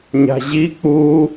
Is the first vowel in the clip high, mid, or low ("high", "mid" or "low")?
low